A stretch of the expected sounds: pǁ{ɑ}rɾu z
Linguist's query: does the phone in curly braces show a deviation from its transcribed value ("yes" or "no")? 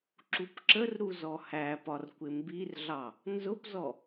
yes